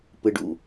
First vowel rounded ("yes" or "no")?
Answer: no